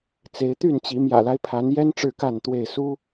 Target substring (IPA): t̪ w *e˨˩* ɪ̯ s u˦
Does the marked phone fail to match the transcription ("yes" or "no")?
yes